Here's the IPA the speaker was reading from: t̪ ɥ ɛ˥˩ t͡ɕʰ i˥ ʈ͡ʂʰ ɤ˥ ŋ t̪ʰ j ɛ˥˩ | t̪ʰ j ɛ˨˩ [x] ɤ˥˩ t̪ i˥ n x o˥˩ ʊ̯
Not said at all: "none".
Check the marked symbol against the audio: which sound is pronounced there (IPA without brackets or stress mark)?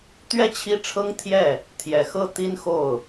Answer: x